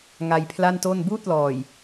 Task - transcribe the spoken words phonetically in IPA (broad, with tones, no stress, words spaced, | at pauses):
ŋa˧jpʰla˥˩nto˥˩n buː˥˩t̚lɔː˨˩j